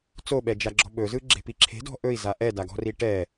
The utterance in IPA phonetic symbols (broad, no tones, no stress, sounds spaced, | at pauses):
t͡s o ɓ ɛ d͡ʒ a ɡ͡ǁ ɔ̤ ɓ ɵ z ɯ ɡ͡ǁ e̤ p i ǁʰ e̤ d ɔ̤ ʔ ɵ i̯ z a ʔ ɛ d a ɡ ɔ̤ r i ʈ ɛ